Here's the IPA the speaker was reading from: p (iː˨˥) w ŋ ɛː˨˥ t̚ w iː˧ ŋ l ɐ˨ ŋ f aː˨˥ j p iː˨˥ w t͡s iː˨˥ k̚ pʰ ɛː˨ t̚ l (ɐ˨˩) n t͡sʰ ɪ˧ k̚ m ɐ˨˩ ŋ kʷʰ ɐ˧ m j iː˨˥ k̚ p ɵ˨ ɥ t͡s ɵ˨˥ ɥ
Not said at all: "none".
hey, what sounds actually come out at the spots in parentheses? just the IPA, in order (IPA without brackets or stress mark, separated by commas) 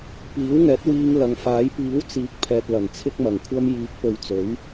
iː˨˥, ɐ˨˩